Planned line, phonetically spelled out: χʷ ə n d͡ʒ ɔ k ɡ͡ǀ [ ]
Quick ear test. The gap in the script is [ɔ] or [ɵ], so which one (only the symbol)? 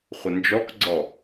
ɔ